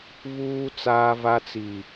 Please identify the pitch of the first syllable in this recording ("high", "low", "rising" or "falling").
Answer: high